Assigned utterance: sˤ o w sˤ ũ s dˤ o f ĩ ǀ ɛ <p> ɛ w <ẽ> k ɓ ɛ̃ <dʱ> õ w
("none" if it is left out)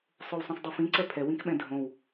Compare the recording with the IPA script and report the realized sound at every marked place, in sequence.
pʰ, ĩ, dʱ

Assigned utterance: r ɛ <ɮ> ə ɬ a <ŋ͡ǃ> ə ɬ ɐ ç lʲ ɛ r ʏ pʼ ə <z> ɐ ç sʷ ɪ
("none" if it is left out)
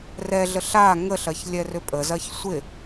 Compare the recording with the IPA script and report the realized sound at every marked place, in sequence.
ɮ, ŋ, z

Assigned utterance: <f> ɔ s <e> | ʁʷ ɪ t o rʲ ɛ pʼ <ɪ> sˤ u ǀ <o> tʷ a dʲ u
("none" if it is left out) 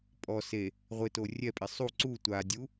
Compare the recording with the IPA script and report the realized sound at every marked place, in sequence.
pʼ, e, ɪ, u

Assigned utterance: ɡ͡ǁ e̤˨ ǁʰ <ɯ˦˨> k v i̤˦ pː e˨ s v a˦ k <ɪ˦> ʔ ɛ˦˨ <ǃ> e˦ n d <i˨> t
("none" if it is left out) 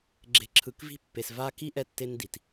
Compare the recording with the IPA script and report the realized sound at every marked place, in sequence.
ɯ˨, i˦, tː, i˨

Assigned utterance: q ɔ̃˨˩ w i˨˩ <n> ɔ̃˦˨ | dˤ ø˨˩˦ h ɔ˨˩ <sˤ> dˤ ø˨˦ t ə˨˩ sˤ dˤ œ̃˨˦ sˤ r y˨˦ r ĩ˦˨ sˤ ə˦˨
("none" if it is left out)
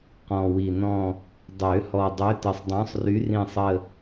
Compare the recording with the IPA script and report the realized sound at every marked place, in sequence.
n, none

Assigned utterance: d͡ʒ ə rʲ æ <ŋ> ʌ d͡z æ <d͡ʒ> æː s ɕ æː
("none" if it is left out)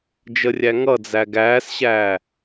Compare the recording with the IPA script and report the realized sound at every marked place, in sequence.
ŋ, ɡ

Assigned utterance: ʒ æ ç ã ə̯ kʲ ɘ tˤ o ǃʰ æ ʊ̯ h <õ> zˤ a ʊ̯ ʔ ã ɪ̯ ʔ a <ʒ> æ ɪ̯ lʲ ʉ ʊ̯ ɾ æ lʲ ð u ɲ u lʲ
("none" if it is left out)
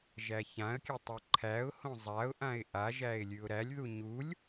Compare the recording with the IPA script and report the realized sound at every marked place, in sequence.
õ, ʒ

